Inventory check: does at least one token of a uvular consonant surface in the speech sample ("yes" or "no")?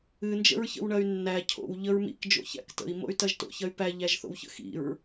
no